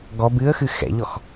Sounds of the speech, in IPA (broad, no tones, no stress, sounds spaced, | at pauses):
ɡ ɔ b ɨ ə̯ x ɨ x ɛ̰ ʎ ɔ x